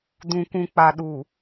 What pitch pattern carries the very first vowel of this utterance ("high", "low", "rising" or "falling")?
low